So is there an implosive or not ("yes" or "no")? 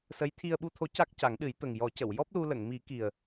yes